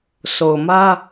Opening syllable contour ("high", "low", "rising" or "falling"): low